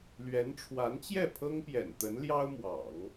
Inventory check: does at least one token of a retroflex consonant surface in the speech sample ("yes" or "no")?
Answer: yes